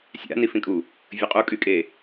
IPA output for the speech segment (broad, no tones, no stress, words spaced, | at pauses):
sʲa̰ nifĩkʼu | vʲəqʼu kʼykʼe